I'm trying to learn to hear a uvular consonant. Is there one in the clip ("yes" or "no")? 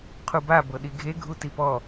yes